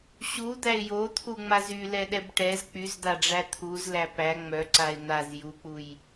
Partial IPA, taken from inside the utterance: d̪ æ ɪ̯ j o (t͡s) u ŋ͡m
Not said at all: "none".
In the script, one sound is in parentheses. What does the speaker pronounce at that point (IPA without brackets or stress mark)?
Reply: t̪ʰ